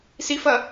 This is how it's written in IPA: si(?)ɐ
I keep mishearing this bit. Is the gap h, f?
f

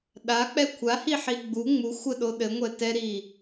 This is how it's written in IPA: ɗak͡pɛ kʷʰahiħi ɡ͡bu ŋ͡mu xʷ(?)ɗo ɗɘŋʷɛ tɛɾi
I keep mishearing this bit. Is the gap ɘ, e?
ɘ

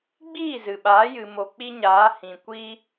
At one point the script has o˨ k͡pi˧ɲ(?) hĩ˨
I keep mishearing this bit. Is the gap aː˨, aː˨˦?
aː˨˦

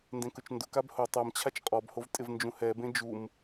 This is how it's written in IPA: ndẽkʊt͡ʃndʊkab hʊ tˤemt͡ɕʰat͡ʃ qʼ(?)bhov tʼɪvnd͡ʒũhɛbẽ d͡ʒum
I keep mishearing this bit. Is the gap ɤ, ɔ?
ɔ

